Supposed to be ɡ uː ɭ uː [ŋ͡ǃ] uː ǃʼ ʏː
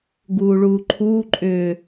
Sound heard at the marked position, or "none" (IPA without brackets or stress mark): ǃʰ